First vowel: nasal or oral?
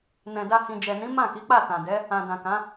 nasal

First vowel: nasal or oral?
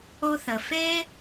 oral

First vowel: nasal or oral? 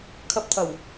oral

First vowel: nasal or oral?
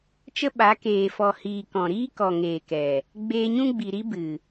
oral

